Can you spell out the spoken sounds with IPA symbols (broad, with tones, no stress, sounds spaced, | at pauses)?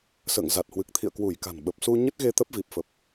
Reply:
s ə̰ː˧˨ ŋ z a˨˩ t̚ h w ɨ˨˩ k̚ t̪ʰ ḭ˧˨ ə̯ k w u˧˩ j k a̤˨˩ n ɓ ə˨˩ p̚ s u˧ ɲ ə˦˥ t̚ ɣ e˧ t̪ ə˦˥ p̚ v i˨˩ p̚ f ə˨˩ p̚